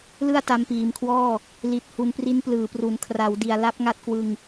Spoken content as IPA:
l ɯ˥˩ a̯ t a˧ m p iː˨˩ m kʰ w ɔː˥˩ | l i˨˩ t̚ h u˧ n p r i˦˥ n p l ɯː˩˦ p r u˨˩ n kʰ r a˩˦ w d i˨˩ a̯ l a˦˥ p̚ ŋ a˦˥ t̚ k w ɯ˧ ŋ

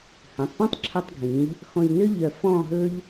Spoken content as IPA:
h œ̃˩˧ tˤ p ɔ̃˥ tˤ ǁʰ œ˧ tˤ ɡʱ ĩ˩˧ ʎ | x ɔ̃˧ ʎ n ø˥ ʎ œ˧˩ f ɔ̃˥˧ ɦ ɵ˥ ʎ

